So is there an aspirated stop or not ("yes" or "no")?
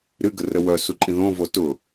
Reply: no